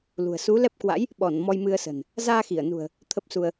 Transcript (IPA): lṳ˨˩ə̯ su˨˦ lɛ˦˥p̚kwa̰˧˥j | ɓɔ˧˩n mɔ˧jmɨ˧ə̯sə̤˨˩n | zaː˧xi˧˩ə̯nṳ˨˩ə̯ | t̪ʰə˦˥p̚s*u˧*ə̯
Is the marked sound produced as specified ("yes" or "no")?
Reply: yes